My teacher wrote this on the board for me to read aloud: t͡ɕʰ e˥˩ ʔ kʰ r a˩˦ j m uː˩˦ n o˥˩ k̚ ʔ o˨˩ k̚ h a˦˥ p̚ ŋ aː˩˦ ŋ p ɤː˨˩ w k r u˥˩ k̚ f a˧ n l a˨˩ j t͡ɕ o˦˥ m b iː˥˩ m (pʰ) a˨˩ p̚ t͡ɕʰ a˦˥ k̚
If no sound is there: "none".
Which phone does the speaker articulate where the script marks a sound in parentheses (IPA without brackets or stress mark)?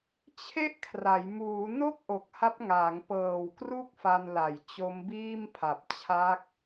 pʰ